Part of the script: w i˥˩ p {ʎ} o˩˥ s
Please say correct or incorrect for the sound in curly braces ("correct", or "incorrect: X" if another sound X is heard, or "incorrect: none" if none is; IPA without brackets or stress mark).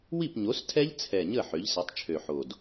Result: incorrect: ɲ